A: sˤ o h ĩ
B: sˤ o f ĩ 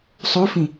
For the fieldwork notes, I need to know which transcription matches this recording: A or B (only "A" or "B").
B